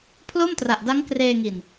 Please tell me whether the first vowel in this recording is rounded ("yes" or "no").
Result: yes